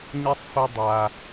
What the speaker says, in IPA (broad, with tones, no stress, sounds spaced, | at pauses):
ɲ i˥ sˤ f ɛ˥ dˤ a˦